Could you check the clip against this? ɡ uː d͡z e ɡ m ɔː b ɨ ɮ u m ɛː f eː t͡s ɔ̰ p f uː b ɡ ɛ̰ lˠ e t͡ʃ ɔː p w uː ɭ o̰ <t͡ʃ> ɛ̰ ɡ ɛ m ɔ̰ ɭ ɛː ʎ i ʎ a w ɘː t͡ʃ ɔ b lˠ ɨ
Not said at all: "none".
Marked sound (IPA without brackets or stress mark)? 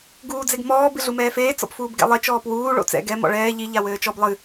t͡s